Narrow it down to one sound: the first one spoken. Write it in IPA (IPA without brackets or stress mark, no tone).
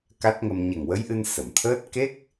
k